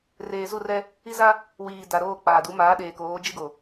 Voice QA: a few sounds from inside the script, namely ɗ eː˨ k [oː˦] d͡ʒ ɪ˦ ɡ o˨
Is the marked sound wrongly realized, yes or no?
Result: yes